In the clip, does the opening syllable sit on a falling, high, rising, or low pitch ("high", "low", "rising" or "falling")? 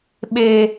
high